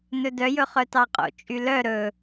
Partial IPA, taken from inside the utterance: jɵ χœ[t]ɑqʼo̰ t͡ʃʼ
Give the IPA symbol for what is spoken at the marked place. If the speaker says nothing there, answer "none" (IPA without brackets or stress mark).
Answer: t